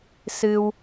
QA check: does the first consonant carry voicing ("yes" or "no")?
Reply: no